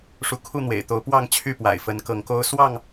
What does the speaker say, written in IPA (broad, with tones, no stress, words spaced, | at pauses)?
ʂu˨˦kʰu˥˨n̪wḛ˨˩ɪ̯t̪o˨˦ʊ̯ pwɑ˥˨ŋt͡ɕʰy˥˨pwa̰˨˩ɪ̯ fə˨˦nkɤ˨˦ŋko˦ʊ̯ swɑ˥˨ŋ